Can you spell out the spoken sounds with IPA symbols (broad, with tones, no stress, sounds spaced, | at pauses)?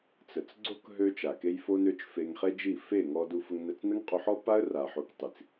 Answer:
t͡s ə˨ t͡s ɡ͡ǀ o˦ k ɦ ø˦ t͡ʃ a˨ k e˦ j f o˧ n ø˧ t͡ʃ f e˧ ŋ χ e˦ d͡ʒ i˦˨ f e˦˨ ŋ ɔ˧ d u˧ f ə˧ ŋ n ə˧ t͡s n ə˦ ŋ qʼ u˧ ħ ɔ˦ pː a˦ ə̯ r a˨ ħ o˧ k tˤ i˨ t͡s